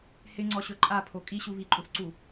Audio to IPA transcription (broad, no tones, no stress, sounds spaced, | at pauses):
h ɪ ŋ͡ǀ ɔ ɕ ɵ ǃʼ a pʰ o kʼ i ɕ u β i ǃʼ u θ ǀ u